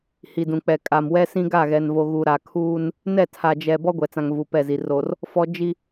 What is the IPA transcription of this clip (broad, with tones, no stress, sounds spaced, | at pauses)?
h i˨ d ũ˨ k͡p ɛ˨ kʼ a˨ m w ɛ˦ s ĩ˦ ɡ a˦˨ ɣ ɛ˨ n v o˨ ɣ u˨ ɾ a˨ kʰ uː˦ n | n ɛ˦˨ tʰ a˨ d͡ʒ ɛ˨ b ɔ˦ ɡʷ ɛ˨ t͡s ã˨ ŋ v u˨ p ɛ˦˨ z i˨ r o˨ r | f ɔ˦ d͡ʒ i˦